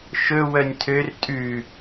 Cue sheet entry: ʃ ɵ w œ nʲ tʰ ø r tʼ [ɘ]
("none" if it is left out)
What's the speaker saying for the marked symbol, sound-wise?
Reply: ʉ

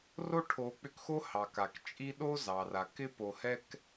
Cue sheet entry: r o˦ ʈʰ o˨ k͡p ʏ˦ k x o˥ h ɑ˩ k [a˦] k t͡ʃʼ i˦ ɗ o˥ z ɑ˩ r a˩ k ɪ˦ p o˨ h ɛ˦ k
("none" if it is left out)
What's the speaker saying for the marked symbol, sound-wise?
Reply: a˩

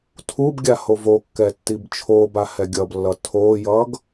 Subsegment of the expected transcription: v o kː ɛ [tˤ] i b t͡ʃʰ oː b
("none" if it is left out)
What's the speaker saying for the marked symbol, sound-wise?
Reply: tː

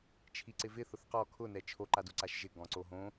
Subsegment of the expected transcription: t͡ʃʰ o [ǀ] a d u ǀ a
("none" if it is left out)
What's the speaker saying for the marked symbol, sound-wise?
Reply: ǃ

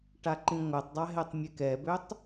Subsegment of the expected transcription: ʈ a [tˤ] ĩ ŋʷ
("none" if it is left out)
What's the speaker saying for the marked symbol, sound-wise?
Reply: ǃ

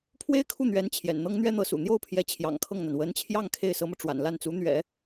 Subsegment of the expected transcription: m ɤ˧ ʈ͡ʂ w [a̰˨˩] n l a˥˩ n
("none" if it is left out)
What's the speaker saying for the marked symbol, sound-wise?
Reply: a̰˨˩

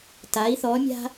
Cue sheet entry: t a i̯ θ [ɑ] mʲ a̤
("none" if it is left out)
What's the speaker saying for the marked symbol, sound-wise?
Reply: ɔ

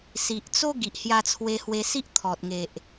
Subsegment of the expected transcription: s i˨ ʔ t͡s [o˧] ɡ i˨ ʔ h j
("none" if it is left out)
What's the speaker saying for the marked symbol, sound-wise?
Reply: o˦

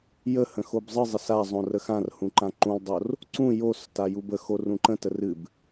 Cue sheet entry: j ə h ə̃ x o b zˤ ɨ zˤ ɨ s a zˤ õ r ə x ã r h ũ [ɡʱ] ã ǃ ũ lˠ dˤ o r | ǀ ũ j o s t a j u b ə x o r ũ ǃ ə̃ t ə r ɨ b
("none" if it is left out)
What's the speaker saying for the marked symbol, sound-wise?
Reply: ǃ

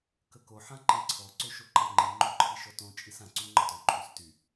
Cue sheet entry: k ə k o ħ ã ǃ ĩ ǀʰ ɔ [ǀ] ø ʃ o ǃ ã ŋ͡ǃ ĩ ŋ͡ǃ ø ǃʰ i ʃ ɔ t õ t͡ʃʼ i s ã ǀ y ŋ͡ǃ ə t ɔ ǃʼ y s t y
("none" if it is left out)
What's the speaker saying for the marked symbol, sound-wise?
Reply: ǀ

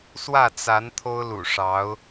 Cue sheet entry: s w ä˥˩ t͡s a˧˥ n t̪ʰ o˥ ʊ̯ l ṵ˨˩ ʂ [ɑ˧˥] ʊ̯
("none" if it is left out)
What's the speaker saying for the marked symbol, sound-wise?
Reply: ɑ˧˥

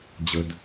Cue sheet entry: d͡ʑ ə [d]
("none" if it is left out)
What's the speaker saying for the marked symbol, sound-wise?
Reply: d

